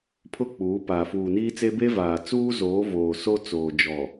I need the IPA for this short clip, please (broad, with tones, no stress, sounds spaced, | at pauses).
pʰ ʊ˦˨ k͡p uː˨˦ p a˨ f uː˨ n iː˦ t͡s e˦ b e˦ v aː˨ t͡s uː˦ z oː˨˦ v oː˨ s o˦ t͡s oː˨ d͡ʒ ɔ˨